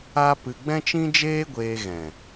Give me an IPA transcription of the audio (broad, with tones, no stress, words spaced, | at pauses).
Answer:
a˦pɨ˧ ɡ͡bɛ̃˦t͡ʃĩ˦d͡ʒeː˦ ɡʷeː˧ɣɛ̃˨